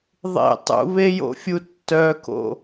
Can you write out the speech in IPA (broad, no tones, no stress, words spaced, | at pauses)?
ðˤḛ tˤṵβejo̰fʲu tːœko̰